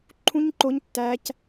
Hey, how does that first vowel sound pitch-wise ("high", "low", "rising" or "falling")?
high